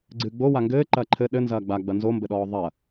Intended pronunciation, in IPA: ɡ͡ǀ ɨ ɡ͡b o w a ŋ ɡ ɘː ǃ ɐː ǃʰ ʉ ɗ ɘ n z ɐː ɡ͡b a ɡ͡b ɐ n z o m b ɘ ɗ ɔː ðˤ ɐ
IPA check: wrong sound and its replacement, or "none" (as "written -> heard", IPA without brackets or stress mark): ʉ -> ɘ